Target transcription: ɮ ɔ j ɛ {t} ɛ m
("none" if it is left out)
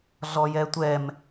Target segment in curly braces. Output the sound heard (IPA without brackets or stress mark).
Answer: tʷ